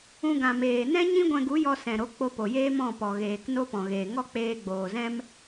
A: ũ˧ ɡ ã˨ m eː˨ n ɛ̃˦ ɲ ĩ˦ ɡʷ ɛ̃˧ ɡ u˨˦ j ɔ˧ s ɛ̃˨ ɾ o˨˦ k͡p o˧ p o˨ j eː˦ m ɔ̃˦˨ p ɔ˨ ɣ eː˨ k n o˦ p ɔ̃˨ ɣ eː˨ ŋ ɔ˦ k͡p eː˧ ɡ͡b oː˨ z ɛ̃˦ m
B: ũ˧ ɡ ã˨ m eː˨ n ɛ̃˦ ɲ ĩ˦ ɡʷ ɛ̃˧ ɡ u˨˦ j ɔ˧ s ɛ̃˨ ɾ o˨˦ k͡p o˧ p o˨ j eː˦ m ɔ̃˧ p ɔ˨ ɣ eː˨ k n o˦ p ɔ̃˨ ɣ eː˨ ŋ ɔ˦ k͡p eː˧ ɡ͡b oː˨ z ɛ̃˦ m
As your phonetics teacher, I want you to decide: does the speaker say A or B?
A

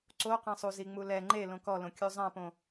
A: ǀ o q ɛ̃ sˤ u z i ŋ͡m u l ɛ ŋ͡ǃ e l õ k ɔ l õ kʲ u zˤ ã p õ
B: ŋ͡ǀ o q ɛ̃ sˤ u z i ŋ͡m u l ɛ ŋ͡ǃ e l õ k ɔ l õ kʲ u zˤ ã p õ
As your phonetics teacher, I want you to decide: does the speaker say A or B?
A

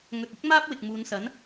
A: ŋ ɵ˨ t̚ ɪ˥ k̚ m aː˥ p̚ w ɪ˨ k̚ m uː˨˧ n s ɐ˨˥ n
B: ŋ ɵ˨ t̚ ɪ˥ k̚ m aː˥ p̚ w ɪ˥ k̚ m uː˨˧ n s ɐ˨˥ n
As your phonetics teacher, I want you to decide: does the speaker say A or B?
A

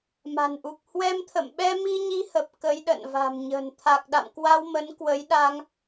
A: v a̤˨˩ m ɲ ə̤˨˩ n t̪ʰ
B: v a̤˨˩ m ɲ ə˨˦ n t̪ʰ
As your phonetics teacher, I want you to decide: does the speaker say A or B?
A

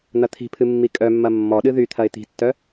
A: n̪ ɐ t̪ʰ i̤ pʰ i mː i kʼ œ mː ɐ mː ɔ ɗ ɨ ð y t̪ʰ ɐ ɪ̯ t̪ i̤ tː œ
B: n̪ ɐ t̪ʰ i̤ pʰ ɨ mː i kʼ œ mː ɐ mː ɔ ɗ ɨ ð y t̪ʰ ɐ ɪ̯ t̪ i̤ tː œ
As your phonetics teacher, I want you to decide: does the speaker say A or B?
B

